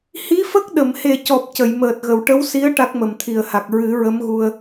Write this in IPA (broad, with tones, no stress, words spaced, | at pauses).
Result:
hi˧˥fə˦˥k̚ ɗə˨˩˨mhe˨˩cɔ˨˩p̚ cə˨˩˨jməː˨˩t̚ɣə˨˩˨w ʈə˧˥wsi˧˥ə̯ ʈa˦˥k̚mə˨˩mt̪ʰi˨˩ə̯ha˨˩k̚ ɹɨ˨˩˦ɹə˧˥mɣu˧ə̯